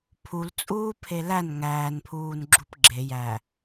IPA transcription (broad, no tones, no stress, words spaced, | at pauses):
pʰult͡sʼuːpʰe læn ŋæːnpʰuːnɡ͡ǁup ɡ͡ǁe jæ